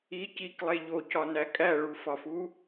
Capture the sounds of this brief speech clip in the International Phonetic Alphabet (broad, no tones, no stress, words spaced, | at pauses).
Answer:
i ciklˠe ʎocɒnæ kʼæɭufɒfu